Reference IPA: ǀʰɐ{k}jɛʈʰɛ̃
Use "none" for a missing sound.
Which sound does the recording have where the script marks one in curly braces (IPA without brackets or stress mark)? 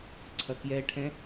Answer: k